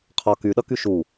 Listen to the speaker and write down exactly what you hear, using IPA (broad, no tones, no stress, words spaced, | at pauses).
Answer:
qʰɒ kyɗʌky ʃu